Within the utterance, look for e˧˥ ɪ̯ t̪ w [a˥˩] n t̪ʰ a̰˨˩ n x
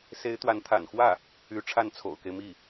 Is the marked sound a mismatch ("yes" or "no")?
yes